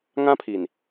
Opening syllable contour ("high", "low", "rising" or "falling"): high